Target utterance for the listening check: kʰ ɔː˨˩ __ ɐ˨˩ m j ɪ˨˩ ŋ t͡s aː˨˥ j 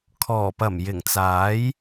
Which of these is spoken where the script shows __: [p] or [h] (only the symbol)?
p